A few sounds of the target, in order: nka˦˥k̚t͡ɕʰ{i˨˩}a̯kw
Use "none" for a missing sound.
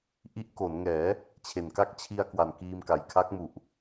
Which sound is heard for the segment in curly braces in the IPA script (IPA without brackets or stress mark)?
i˧